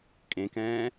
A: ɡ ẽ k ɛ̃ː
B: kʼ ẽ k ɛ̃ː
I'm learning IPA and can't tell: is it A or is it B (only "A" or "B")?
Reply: B